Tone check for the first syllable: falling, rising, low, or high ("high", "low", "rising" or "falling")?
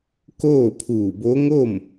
falling